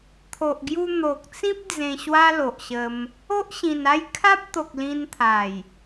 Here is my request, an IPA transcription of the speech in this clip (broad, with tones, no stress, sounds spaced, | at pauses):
t̪ʰ o˨ ʔ ɡ j u˧ n̪ o˨ k̚ t͡s ĩ˦ p̚ d͡z ẽ˧ ɕ w a˦ l o˨ ʔ ɕ ə˧ m | o˦ ʔ ɕ ĩ˨˩ n a˥˧ j kʰ a˦ p̚ t̪ o˨ k̚ l ĩ˧ n t̪ʰ a˨˩ j